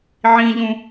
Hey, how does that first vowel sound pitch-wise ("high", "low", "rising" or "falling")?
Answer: high